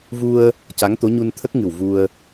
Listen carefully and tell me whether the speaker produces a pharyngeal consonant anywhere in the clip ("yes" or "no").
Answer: no